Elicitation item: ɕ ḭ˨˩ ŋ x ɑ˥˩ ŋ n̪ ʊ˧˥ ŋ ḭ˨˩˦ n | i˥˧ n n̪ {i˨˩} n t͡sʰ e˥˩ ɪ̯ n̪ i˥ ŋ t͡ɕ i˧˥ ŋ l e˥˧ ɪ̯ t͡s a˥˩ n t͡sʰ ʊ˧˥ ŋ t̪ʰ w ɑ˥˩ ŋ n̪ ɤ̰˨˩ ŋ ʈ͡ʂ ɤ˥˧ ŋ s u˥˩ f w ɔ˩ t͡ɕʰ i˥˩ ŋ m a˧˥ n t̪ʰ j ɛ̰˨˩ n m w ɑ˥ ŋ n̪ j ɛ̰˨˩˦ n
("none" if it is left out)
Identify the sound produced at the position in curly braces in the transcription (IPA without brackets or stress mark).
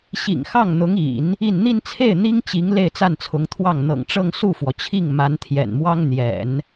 i˥˧